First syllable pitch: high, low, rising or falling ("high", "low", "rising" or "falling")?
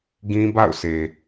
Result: high